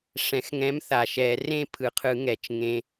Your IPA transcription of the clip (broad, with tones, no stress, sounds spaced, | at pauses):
ʂ ɛ̃˨˩˦ x ŋ ɛ̃˨˥ m θ a˨˩˦ ʃ ɛ˨˩˦ r ẽ˥˧ pʰ ɯ˨˩˦ qʰ ɯ˨˩˦ ŋ ɛ˨˩˦ t͡ʃ ŋ ẽ˨